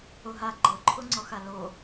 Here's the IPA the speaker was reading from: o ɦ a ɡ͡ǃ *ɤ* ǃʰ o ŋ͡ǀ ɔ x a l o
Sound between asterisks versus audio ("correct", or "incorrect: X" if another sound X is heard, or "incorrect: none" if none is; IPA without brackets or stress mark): correct